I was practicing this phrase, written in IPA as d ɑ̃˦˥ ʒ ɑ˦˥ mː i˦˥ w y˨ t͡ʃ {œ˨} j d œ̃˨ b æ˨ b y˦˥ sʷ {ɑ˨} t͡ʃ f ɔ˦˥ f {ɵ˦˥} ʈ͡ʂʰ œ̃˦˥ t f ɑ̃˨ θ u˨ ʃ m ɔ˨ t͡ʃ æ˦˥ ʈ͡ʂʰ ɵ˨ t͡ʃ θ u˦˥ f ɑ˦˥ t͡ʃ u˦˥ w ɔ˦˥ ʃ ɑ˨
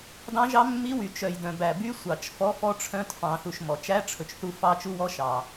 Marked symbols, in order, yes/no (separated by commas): yes, yes, no